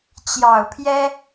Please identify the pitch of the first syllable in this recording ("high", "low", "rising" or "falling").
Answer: low